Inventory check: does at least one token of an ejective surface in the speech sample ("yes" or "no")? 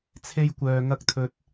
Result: no